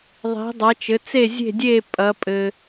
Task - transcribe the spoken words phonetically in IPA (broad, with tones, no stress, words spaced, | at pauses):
ðˤi̤˨˦dˤʌ˨˦t͡ʃɘ˨˦t͡se˥˧ zʲe̤˥˧dʲe˥˧ pʼɐ˨˦pʼɘ˨